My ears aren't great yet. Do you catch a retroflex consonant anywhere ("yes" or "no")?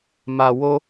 no